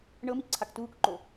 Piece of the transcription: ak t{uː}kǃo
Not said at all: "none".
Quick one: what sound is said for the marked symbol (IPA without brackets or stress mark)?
uː